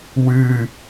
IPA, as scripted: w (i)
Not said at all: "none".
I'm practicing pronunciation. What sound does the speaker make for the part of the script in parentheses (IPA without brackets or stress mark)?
ɨ